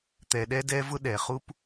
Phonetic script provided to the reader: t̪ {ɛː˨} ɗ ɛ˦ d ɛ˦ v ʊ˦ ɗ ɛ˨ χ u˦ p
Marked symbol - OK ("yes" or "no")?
no